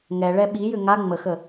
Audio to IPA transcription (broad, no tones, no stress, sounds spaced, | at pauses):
ŋ ɛ ɭ ɛ ɓ i j ʏ ŋ a ŋ͡m ə x ə